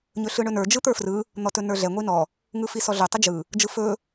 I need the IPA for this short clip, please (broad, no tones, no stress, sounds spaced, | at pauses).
ɲ ɵ ɬ ɯ ɳ ɵ n ə˞ d͡ʒ ɯ t̪ ə˞ f r ɯ | n̪ ɔ t ɵ n ə˞ ɮ ɛ ŋʷ i n ɔ | ŋ ɯ f i s ɔ ɮ ɵ tˤ ɘ d͡ʒ ɯ | d͡ʒ ɯ f ɵ